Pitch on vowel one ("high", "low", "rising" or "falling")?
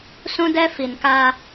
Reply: high